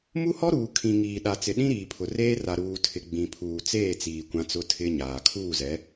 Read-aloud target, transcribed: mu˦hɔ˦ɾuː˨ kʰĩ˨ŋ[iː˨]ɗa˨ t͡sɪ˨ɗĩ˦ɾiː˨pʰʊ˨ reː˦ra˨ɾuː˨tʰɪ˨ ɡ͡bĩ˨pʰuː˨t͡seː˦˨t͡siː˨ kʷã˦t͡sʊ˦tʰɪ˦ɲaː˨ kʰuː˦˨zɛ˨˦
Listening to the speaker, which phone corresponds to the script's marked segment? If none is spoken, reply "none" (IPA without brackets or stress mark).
iː˨